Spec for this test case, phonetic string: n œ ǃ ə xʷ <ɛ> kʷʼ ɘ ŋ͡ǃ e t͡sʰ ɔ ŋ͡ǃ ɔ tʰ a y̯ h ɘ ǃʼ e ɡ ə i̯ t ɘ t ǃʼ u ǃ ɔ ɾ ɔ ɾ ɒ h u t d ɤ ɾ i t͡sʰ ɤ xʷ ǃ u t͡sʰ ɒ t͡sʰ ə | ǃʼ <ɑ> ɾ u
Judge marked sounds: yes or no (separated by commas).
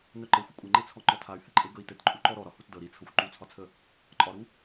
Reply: no, no